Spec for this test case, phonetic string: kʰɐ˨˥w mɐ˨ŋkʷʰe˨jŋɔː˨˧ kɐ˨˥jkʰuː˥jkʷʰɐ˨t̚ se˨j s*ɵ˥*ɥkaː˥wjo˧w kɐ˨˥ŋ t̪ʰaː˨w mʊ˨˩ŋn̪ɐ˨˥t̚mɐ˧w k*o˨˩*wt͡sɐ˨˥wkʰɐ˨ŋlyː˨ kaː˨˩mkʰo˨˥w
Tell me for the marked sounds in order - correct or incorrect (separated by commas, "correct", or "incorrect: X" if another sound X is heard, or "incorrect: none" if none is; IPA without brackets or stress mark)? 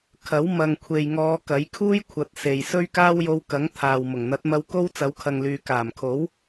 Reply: correct, incorrect: o˥